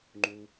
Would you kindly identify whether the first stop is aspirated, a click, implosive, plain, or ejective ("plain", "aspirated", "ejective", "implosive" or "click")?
click